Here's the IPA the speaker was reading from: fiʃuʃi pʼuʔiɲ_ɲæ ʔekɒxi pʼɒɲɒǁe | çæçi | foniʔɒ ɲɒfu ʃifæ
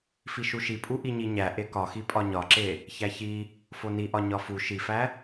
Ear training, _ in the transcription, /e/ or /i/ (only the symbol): i